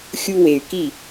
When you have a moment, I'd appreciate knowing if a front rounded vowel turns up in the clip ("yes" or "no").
yes